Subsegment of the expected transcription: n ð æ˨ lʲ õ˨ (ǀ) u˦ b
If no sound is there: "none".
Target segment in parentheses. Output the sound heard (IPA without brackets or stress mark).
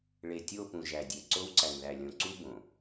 ǀ